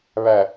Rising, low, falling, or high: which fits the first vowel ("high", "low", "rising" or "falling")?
low